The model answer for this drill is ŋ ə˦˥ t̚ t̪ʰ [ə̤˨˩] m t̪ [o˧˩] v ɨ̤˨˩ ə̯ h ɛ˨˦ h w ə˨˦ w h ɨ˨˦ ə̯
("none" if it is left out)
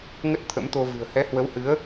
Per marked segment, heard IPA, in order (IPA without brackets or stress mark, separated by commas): ə̰˧˥, o˧